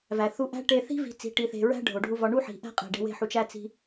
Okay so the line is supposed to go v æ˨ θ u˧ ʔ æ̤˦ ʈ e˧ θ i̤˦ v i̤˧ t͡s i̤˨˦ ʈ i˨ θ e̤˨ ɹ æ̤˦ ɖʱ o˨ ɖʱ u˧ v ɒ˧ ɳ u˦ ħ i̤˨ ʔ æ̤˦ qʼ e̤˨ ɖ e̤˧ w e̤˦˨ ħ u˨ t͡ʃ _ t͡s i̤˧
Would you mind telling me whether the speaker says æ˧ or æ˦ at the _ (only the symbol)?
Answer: æ˧